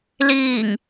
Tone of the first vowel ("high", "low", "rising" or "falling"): low